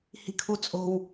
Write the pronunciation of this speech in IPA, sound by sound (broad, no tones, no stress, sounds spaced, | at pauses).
h i̤ kʰ u t͡sʼ o̤ w